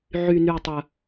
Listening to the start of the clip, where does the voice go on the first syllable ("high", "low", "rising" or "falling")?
high